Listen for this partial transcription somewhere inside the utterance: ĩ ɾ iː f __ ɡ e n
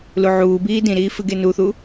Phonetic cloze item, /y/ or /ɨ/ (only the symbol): ɨ